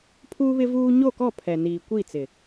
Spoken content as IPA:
pʰuː˦βɪ˦vuː˦ ɲo˦˨kɔ˦˨ pʰɛ˨ niː˨ kʷi˦˨t͡sɪ˨

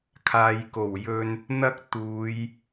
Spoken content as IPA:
kʰaː˨jko˨˩wjɵ˧n | n̪ɐ˥k̚t̪uː˨˧j

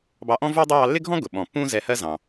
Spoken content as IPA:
bɑ˧ʔɔ̃˥vu˥dˤʊ˥ jɑ˧lːɪ˥ɡʱɔ̃˥ ɡʊ˩ ɓɔ̃˩pːũ˥ zɛ˧hɜ˥zɑ̃˩

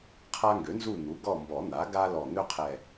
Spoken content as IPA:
qʰa˦ŋɡø˩˥nzu˦˨ n̪u˩˥ɡɔ˦˨mbɔ˨˩˦n̪a˩˥ ɡa˦ lɔ˨˩n̪ø˦ qʰɛ˦˨

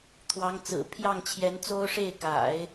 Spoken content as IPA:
t̪ʰwɑ˧˥ŋt͡sɹ̩˨˩ pʰjɑ˥˩ŋt͡ɕʰjɛ˧˥nt͡so˥ʊ̯ ʂe˥˩ɪ̯ka̰˨˩˦ɪ̯

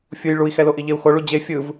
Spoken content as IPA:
fʲuj ɭui̯xɛlo ʔiʎeu̯xo ɭud͡ʑe fʲɯv

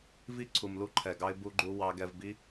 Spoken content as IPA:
vi˦ ǀʰu˨mlu˦ǃʰɛ˨ɡɑ˦ɪ̯ bu˧ɡ͡ǃu˧ wɑ˦ ɡɛ˧vbi˦

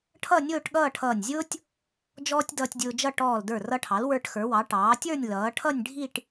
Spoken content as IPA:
ʈʰʌ˥˧nʲʊː˥˧ʈ ɠʌː˥˧ʈʰʌː˧˩nʲ zʲʊː˥tʲ | d͡ʒɔː˥tʲdʌː˧tʲdʲʊː˧d͡ʒʌ˥˧ ʈɔː˧˩l də˞˧˩rʌ˧ʈʰɑ˩˧l wə˞˧ʈxə˞˩˧wɑ˩˧ ʈɑː˩˧tʲə˞˥˧nʲ lʌː˩˧ʈʰʌ˥˧nʲ ɖʱi˥˧ʈ

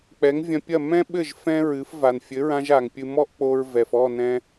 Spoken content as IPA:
k͡pɛ˩˥ŋvʲɐ̃˧pʲɐ˥˩ mɛ̃˥ɓɘ˥˩ʒ fɛ̃˥ɹɨ˩˥f va˩nfʲɘ˩˥ɹã˧ʒa˩ŋ pʲɨ˧ mɔ˥ʔk͡po˧ɹvɛ˩f ɔ˥˩nɛ̃˧

